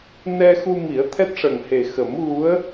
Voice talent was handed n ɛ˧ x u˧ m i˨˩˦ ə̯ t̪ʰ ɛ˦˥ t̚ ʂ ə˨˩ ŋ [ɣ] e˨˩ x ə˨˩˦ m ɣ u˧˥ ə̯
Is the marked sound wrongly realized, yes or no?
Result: yes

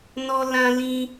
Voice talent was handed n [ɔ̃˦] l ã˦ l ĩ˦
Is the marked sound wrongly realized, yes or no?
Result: yes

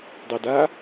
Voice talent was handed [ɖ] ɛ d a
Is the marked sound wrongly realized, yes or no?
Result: yes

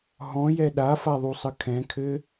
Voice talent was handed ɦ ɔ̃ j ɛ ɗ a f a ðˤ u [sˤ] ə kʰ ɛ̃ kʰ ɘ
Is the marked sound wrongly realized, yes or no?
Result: no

